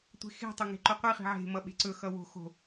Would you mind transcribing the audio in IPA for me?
tʷe̤xe̤tˤo ŋe̤ǃoqʷiχi̤ ʕe̤mʌ ɓe̤ǀɵxʌ wo̤ xo̤

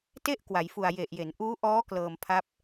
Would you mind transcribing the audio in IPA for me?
te˥˩ʔ kwa˩˦jfu˨˩a̯ je˨˩ʔje˩˦n ʔuː˦˥ʔɔː˦˥ klɤː˧mpʰa˦˥p̚

